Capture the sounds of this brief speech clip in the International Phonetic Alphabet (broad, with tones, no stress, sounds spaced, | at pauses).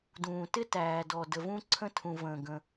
d ũː˨ t ɪ˦ t æː˨ d ɔ˨ d ə˨ v ũ˦ ǀʰ ə̃˦ tʰ ũ˨ v ə̃ː˨ ɡ ə̃˦